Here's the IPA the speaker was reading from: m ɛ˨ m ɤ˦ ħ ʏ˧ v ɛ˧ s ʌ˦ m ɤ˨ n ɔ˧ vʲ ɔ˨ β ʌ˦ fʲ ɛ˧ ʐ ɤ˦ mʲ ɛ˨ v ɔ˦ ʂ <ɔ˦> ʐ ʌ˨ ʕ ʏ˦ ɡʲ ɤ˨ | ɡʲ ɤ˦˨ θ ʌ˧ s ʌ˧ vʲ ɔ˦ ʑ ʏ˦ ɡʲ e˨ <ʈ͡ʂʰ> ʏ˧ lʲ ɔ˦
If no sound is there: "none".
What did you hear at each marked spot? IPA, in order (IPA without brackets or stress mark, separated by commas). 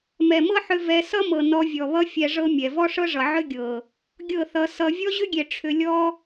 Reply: ɤ˦, ʈ͡ʂʰ